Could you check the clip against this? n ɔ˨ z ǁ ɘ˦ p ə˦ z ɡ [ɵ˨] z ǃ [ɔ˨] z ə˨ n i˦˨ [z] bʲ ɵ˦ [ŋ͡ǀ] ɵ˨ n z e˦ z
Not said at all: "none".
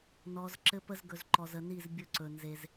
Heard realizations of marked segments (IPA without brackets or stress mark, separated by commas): ɵ˨, ɔ˨, z, ǀ